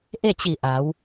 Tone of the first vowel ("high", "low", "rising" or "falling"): falling